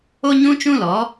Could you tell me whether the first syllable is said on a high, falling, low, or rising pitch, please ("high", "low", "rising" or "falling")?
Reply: high